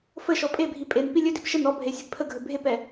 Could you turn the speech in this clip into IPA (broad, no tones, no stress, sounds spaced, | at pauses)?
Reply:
f ə ʃ ɔ pʼ e bʱ i pʼ e n p i lʲ ɵ d i p ʃ ə n ɔ bʱ e sʲ e ɡ pʰ ə ɡʱ ɵ bʱ e p ɛ